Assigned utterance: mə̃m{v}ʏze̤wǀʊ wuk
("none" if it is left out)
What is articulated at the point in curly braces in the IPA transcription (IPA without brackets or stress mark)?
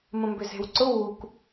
b